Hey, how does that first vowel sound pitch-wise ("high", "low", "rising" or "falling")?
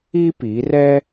high